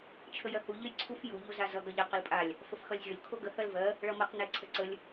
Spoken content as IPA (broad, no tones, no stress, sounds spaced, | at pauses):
t͡ʃʰ ə j ɜ h u ʎ ə j ǀʰ u f j u ʎ o z a z ʌ ɡ ʌ ʎ ʌ q ə l pʼ a lʲ | f ə f x ʌ lʲ zʲ o lʲ kʰ o ɡ ə h ɜ l v ɜ | ɭ ʌ m ʌ q n ɛ ǀʰ ə ǀ ə lʲ